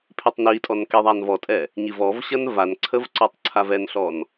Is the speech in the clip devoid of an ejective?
no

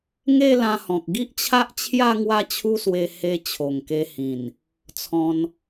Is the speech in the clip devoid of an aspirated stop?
no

